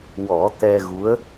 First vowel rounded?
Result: yes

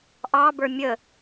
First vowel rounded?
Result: no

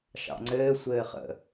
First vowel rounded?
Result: no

